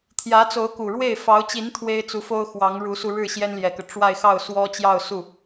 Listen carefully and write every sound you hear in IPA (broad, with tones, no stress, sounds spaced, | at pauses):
t̪ʰ j ä˧˥ t͡s o˧˥ ʊ̯ k u˨˩ ɻ w e˥˩ ɪ̯ f ɑ˧˥ ʊ̯ t͡ɕ i˧˥ n t̪ʰ w e˥ ɪ̯ t͡s u˧˥ f o˥ ʊ̯ x w ɑ˧˥ ŋ ɻ u˧˥ s u˧ ɻ ɻ̩˥˩ ɕ j ɛ˥ n l j ɛ˨˩ k ɤ˦ ʈ͡ʂ w a˥˧ ɪ̯ x ɑ˥˩ ʊ̯ s w ɔ˥ t͡ɕ j ɑ˥˧ ʊ̯ s u˥˩